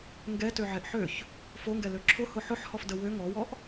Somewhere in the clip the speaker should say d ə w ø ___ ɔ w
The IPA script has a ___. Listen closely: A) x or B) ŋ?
B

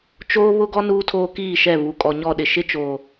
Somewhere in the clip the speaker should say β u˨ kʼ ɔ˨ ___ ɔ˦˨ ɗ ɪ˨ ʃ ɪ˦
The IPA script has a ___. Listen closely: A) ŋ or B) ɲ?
B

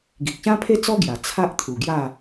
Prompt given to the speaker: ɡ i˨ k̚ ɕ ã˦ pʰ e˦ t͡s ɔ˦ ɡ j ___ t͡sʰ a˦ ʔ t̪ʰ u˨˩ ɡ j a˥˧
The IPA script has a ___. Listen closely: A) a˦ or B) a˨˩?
B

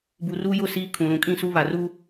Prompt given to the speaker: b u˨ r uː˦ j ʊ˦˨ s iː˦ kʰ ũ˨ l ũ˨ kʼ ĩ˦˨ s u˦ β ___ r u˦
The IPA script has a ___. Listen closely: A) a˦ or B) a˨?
B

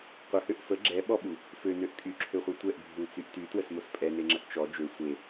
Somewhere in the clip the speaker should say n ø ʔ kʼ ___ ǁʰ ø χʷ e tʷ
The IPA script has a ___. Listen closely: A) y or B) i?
A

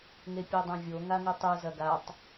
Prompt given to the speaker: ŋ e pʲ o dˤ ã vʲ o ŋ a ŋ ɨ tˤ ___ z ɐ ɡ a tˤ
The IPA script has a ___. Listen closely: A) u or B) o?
A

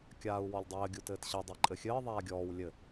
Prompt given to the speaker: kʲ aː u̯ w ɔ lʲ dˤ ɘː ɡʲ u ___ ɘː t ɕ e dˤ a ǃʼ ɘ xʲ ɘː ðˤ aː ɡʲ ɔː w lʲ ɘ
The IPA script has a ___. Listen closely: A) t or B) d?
A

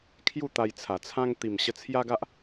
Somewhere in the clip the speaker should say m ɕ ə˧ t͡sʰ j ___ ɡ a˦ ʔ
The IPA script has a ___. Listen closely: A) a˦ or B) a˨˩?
A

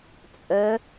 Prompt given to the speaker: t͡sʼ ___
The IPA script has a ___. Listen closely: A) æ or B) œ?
B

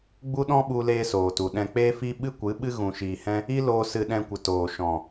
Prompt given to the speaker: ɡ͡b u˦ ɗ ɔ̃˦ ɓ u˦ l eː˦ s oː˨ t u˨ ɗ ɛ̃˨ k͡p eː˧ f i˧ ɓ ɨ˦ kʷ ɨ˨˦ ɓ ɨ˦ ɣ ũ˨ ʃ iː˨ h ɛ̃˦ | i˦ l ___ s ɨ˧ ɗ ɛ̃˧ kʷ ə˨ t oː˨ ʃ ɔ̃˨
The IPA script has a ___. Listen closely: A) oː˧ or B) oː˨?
A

